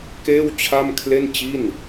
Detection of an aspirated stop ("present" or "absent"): present